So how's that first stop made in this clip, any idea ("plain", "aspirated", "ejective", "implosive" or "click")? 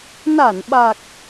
implosive